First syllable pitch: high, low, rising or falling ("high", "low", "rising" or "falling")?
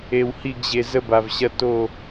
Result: low